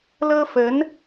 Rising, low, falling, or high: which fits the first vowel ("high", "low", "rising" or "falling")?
high